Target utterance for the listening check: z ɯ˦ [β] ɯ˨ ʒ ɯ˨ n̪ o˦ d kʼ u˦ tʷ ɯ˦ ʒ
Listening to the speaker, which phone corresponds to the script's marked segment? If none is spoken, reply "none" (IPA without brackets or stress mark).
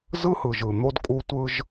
h